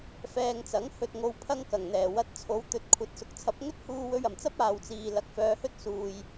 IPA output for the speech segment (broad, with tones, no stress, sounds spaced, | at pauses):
f ɛː˧ ŋ t͡s ɐ˨˥ ŋ h ɵ˨ t̚ ŋ o˨˧ w pʰ ɐ˧ ŋ k ɐ˨˩ ŋ n̪ ɛː˨˩ w ɐ˧ t̚ t͡sʰ o˨˥ w t̪ ɵ˨ t̚ kʷʰ ɐ˨˥ t̚ s ʊ˨ k̚ t͡sʰ ɐ˨˥ p̚ ŋ ɵ˥ t̚ h uː˧ w ɵ˧ ɥ ɐ˨˩ m t͡s ɐ˥ p̚ aː˨ w t͡s iː˨ l ɐ˨ k̚ f œː˨˧ h ɵ˥ t̚ s uː˨ j